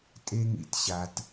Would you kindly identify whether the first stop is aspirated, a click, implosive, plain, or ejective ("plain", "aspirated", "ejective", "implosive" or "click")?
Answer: ejective